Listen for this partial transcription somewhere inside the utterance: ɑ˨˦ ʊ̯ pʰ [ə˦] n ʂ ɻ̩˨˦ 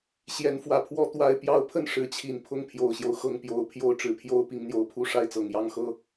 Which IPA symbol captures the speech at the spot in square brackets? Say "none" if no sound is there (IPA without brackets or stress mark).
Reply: ə˥˨